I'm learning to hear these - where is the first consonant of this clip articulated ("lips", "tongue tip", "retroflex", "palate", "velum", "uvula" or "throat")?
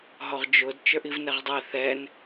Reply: throat